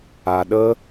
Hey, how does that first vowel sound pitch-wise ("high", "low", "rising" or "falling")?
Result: low